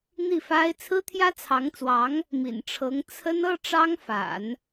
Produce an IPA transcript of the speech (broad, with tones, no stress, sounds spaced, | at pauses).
n̪ i˥˩ f a˥ ɪ̯ t͡sʰ ɹ̩˥ t̪ʰ j ä˥ t͡sʰ ɑ˧˥ ŋ t͡s w ɑ˧˥ ŋ | m ḭ˨˩ n ʈ͡ʂʰ ɤ˧˥ ŋ t͡sʰ ə˥ n ɤ˥ ʈ͡ʂ ɑ˥ ŋ f a̰˨˩˦ n